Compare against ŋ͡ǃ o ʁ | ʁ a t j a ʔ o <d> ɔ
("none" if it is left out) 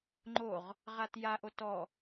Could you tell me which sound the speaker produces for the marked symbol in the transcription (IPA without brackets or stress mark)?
t